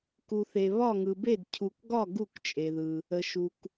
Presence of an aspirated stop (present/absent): present